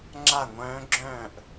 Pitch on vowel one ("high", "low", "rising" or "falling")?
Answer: falling